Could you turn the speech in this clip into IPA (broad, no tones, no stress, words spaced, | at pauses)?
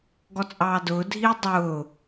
ɡɔt͡sʼɑːdʊːdʱiː dˤʊː